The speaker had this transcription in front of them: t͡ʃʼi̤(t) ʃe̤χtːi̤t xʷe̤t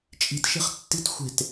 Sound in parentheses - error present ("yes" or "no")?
no